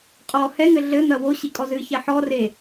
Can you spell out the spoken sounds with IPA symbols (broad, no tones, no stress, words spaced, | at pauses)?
qʼɔ hɛŋɘ ɮɘn̪ɐ woɕikʼɔ zɨçɛ ħɔre